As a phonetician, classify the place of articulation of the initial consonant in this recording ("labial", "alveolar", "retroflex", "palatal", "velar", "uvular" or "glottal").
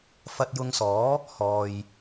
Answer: labial